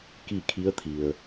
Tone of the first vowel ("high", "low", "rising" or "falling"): falling